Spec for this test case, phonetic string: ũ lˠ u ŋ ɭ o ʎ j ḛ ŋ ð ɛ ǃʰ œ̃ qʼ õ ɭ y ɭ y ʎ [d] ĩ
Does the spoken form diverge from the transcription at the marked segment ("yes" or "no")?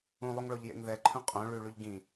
yes